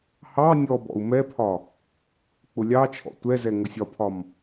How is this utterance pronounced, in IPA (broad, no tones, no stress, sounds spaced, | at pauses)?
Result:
h ɑ nʲ ɔ b ɔ̰ u̯ m ɛ pʰ ɒ | k͡p ʊ lʲ ɑ t͡ʃʰ ɔ̰ tʷ ɛ z ɛ ŋ ʊ sʲ ɒ pʰ ɒ m